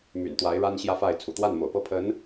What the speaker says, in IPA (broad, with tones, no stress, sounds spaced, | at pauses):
m y̰˨˩ n t̪ w a˧˥ ɪ̯ ɻ a˥ n ɕ j ä˥ f a˥˩ ɪ̯ t͡sʰ ṵ˨˩ t̪ w a˥˩ n m o̰˨˩ ʊ̯ p ɤ˥˩ pʰ ə˧˥ n